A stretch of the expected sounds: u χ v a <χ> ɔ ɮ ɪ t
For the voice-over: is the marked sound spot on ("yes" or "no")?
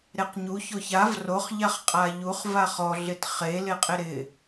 yes